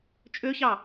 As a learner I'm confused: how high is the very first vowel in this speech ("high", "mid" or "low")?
mid